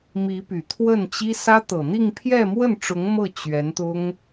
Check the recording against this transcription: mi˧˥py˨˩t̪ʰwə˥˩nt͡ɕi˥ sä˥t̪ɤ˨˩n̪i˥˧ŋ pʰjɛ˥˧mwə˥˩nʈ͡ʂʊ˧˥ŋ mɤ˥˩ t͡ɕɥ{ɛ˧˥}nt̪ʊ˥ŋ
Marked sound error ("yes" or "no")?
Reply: no